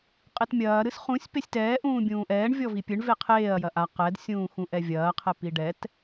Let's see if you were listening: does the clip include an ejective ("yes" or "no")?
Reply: yes